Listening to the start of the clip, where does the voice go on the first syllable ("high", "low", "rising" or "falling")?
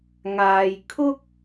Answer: low